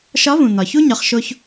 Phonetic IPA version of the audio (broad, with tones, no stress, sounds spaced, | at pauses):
ʃ ɒ˧˥ v ũ˩ n̪ ɒ˩ ç u˥ ɲ ɒ˩˧ χ ʃ o˧ ç